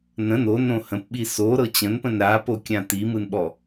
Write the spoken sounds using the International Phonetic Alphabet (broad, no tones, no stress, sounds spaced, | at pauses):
n ə̃ n o n õ h ə̃ p ɓ i s o ɾ ɤ t͡ɕ ə̃ n p ə̃ n ɾ a p o kʲ ã t i m ɯ n ɓ ɔ